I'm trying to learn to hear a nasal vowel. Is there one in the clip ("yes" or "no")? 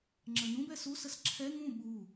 yes